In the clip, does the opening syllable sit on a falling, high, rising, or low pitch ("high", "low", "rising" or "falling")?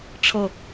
falling